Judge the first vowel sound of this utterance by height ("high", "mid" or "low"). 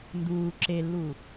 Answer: high